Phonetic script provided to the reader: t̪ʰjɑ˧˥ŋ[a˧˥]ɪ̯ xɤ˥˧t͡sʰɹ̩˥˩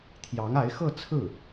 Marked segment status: correct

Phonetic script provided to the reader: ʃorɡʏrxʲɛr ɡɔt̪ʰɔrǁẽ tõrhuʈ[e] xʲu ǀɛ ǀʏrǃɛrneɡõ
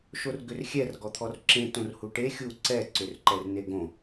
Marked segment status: correct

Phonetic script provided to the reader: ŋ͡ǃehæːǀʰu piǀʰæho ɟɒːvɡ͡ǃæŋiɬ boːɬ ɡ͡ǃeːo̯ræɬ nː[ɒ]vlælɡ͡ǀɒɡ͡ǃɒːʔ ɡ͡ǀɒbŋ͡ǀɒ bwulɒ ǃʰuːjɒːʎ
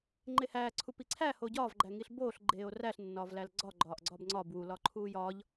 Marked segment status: incorrect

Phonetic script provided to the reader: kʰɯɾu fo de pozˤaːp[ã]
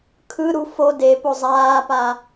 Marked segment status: incorrect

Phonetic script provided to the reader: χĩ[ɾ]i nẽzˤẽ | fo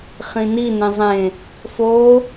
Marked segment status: incorrect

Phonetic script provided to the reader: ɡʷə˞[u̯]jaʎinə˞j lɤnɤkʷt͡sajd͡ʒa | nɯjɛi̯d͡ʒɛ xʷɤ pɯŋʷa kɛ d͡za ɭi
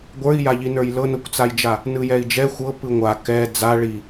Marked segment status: incorrect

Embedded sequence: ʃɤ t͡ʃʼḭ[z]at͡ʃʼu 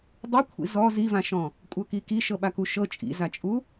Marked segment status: correct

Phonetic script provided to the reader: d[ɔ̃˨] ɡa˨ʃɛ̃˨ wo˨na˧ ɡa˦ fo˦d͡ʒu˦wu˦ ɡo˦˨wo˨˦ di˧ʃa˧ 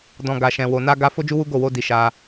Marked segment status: correct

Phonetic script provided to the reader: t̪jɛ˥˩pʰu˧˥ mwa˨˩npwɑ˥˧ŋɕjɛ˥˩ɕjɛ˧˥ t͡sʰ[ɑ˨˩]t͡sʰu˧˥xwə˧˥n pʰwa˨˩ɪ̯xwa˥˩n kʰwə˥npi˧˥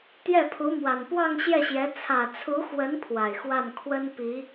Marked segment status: incorrect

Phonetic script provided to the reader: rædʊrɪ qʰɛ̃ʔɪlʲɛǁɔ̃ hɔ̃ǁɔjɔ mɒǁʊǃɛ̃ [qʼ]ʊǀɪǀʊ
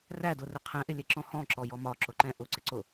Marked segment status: incorrect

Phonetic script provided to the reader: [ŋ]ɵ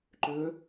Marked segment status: incorrect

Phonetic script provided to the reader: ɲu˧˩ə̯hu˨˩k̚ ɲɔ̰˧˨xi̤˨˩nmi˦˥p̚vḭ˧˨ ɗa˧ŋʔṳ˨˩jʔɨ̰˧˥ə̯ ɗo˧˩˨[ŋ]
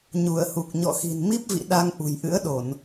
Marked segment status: incorrect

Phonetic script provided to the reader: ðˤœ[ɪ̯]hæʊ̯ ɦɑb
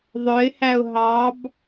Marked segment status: correct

